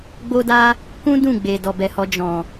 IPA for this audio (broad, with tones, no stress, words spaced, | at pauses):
ɡ͡bo˦da˦ | kũ˦dũ˦˨ɡ͡be˨ dɔ˨bɛ˨hɔ˧ d͡ʒɔ̃˨